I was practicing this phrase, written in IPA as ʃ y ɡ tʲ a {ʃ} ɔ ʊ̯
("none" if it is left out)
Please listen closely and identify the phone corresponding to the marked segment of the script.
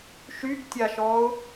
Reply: ʃ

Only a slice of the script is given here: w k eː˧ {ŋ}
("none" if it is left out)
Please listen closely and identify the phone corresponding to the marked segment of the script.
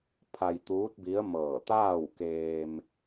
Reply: m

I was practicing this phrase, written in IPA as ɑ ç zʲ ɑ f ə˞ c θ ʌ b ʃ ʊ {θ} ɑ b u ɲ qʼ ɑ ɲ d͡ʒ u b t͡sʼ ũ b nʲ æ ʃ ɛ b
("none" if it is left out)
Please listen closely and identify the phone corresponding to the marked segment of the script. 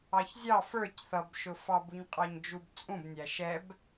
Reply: f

